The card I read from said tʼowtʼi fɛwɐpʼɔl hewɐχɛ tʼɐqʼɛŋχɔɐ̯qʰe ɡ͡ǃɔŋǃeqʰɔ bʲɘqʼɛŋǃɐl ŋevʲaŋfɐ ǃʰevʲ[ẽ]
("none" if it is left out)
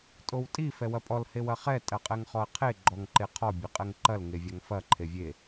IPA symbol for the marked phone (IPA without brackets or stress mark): e